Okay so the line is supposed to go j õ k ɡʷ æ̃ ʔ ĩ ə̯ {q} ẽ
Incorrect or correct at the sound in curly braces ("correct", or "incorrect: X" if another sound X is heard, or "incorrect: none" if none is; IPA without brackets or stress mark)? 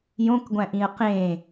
correct